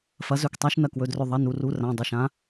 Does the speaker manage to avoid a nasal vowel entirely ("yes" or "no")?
no